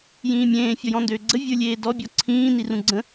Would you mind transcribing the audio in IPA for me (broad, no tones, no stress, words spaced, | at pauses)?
jĩːmʲẽː fʲɔjɔ̃ndøːɡ͡ǀə vʲə˞lʲeːdɔ bʲɔǀʰĩː nirũɡ͡ǀə̃